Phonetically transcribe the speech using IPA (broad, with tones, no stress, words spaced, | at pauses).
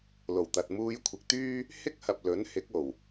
lo˨˩wt̪ɐ˨t̚ muː˧j kʷʰɪ˨k̚t̪yː˥ | hɪ˥k̚hɐ˨p̚ lɵ˨˥n hɪ˨˥k̚o˨˩w